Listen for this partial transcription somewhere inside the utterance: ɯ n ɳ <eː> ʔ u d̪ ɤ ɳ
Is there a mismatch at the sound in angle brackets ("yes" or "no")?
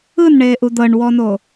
no